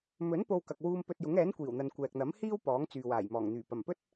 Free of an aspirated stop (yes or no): yes